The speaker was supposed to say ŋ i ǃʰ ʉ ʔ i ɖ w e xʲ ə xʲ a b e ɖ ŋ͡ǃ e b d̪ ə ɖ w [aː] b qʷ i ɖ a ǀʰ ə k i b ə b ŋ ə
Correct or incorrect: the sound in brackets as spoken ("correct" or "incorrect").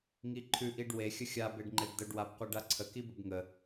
incorrect